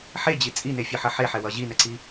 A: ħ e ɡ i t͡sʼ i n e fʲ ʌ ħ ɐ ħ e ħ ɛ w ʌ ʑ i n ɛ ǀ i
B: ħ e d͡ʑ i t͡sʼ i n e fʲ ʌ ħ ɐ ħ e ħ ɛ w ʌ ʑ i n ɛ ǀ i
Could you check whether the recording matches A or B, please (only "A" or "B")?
B